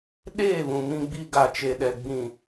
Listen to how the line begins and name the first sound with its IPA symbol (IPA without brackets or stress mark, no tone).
ɗ